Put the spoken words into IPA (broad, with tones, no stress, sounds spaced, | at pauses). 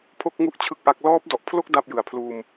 pʰ o˥˩ k̚ ŋ u˥˩ ʔ t͡ɕʰ ɯ˥˩ k̚ ʔ a˦˥ k̚ l ɔː˦˥ p̚ d ɔ˨˩ ʔ pʰ l o˥˩ k̚ d a˥˩ p̚ j ɯ˨˩ a̯ pʰ l uː˧ m